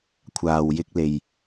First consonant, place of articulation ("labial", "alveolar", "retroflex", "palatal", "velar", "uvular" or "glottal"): velar